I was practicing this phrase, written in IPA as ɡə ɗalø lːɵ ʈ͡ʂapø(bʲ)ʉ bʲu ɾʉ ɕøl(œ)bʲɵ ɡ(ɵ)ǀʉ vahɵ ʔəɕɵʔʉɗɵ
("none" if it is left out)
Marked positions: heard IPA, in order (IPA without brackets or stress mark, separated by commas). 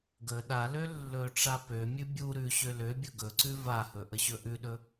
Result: mʲ, ø, ɵ